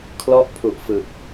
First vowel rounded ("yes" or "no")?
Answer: yes